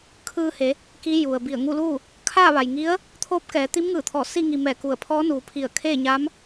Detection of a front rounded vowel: absent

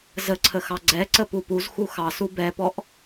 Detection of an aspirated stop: present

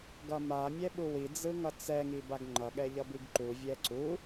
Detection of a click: present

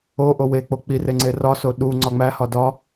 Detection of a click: present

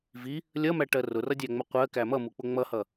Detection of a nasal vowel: absent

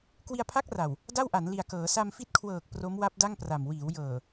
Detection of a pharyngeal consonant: absent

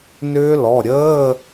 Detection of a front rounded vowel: present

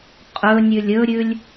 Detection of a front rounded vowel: absent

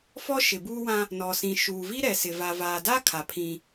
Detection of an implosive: absent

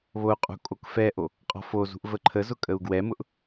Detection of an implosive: absent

